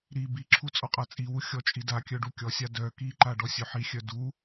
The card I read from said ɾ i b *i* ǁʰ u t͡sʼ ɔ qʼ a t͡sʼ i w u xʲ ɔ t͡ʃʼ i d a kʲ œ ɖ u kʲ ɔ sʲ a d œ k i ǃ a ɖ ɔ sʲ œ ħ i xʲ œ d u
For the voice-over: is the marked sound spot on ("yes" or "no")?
yes